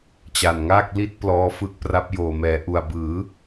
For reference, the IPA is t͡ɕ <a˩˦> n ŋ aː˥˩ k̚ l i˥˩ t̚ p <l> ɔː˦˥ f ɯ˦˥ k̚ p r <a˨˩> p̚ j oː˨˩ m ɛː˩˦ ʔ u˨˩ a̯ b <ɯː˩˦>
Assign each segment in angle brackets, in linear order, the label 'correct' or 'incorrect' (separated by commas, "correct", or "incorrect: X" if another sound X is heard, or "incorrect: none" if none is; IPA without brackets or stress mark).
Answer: incorrect: a˨˩, correct, incorrect: a˦˥, correct